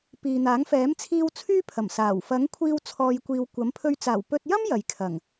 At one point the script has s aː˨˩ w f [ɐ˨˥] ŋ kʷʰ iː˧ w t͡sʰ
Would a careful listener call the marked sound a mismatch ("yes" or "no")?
no